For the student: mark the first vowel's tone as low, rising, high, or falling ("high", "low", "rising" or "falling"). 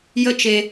falling